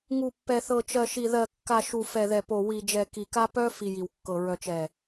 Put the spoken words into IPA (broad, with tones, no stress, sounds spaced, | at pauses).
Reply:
ŋ u˨ pː ɛ˨ θ ɤ˨ t͡ʃ ɜ˨ ʃ i˨ ð ɜ˨ kː a˨ ʃ u˨ f ɛ˨ ð ɛ˨ p o˨ w i˨ d͡ʒ ɛ˨ k i˨ k a˦ p œ˦ f i˨ j i˨ w kː ɤ˨ ɹ œ˨ t͡ʃ ɛ˨